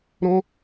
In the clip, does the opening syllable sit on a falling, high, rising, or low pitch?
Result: high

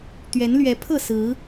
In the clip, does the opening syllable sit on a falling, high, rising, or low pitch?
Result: rising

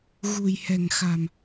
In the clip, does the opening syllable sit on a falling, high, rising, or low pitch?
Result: low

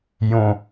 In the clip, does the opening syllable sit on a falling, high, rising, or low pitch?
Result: low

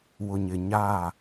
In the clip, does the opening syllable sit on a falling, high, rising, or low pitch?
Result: low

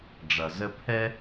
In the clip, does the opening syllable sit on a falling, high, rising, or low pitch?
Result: low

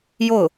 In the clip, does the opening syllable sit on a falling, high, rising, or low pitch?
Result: falling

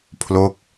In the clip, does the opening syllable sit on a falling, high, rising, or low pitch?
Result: falling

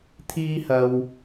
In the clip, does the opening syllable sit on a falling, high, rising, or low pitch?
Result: high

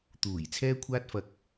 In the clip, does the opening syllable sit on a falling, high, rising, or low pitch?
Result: low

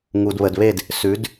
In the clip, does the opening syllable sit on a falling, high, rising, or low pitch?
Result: low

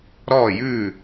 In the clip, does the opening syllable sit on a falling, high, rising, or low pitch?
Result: falling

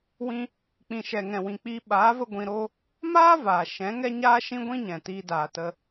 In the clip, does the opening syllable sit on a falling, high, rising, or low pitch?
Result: high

